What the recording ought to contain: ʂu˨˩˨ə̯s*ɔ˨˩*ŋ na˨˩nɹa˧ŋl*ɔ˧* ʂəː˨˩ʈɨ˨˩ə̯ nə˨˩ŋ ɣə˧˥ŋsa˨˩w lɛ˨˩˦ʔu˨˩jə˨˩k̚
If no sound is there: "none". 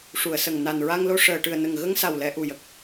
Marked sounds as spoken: ə˨˩, o˧

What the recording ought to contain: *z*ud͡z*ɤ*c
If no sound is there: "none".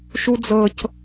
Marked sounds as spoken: ʃ, ɤ

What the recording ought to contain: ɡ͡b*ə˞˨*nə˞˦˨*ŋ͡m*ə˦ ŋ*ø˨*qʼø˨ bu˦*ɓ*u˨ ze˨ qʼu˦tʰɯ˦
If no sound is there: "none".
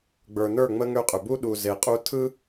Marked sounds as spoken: ə˞˨, ŋ͡m, ø˦, ɗ

